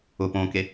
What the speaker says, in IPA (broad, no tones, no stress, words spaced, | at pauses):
ʊpõːke